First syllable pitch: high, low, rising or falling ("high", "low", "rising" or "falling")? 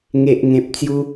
low